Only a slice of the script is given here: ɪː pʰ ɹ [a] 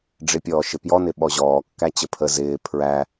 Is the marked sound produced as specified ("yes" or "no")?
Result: no